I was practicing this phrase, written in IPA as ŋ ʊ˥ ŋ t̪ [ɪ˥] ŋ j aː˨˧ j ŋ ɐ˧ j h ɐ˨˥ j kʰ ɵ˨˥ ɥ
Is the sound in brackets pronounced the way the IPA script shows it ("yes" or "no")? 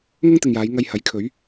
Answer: no